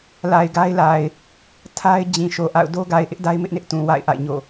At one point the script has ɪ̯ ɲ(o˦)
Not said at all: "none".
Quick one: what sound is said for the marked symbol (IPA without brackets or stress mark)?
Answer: o̰˦˨